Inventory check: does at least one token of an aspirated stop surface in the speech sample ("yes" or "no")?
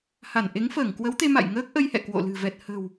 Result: no